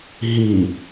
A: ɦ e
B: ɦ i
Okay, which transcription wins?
B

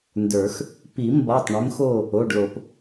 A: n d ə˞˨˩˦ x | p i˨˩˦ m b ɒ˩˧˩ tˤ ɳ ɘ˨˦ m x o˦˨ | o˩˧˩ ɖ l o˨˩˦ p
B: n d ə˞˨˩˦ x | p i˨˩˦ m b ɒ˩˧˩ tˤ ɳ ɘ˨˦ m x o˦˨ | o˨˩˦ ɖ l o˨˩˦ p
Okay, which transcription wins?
A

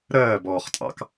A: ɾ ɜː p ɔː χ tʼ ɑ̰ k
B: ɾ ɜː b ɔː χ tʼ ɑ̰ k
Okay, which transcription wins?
B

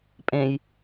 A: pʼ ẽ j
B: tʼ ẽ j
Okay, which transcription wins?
A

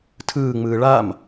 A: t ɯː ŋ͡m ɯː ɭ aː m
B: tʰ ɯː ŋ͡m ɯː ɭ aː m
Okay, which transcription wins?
B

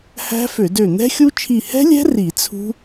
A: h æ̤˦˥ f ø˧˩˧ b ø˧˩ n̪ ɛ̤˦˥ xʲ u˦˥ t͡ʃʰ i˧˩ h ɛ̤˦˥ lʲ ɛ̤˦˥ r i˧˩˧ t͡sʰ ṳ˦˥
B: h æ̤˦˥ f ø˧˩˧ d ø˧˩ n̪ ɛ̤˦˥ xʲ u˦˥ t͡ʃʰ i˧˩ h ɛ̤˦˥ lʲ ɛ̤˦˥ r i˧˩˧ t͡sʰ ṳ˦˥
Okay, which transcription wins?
B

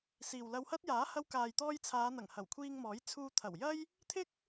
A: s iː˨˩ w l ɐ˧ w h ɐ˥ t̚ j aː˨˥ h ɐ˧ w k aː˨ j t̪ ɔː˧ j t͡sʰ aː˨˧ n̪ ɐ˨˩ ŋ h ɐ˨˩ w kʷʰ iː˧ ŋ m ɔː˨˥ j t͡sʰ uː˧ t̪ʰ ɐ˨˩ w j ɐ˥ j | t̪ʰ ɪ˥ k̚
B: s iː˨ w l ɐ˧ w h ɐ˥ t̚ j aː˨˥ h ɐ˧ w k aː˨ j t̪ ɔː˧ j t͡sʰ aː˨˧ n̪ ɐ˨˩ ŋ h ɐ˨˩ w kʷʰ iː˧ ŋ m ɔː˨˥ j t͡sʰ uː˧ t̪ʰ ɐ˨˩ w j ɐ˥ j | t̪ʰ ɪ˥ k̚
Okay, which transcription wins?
B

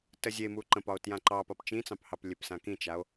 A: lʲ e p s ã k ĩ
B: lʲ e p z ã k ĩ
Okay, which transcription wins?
A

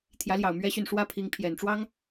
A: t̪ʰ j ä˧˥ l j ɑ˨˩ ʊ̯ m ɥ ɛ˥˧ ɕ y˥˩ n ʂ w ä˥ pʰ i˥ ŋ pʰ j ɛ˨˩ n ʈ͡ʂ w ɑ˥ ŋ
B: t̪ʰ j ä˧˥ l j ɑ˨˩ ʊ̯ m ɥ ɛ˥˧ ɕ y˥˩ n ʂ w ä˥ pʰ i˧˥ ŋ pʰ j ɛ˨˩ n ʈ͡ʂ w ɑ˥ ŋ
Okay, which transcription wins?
B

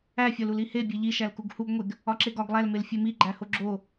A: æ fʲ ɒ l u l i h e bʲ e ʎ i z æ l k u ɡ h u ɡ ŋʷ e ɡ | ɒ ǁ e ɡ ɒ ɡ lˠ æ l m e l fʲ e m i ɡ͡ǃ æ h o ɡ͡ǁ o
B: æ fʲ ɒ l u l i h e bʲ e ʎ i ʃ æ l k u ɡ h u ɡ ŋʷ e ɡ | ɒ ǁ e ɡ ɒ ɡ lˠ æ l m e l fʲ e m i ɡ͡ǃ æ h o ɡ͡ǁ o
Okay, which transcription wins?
B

